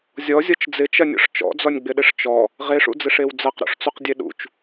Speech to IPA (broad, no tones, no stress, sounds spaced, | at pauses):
zʲ ɔ zʲ ɔ t͡ʃ d͡z ɪ t͡ʃ ɐ nʲ ɔ̰ ʂ t͡ʃ ɔ̰ d͡z ɔ nʲ ɡ͡b ɪ ɗ ɪ ʂ t͡ʃ ɔ | ʁ e ʂ ṵ d͡z ɪ ʂ e w d͡z ɐ q ɾ o̰ ʂ t͡s u q dʲ e ɗ ṵ t͡ʃ